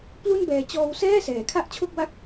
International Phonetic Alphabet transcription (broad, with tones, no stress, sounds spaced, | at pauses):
p l u˥˩ n b ɛː˧ t͡ɕ ɔː˧ w s ɛː˥˩ s ɛː˩˦ kʰ a˥˩ ʔ t͡ɕʰ o˥˩ k̚ w a˥˩ k̚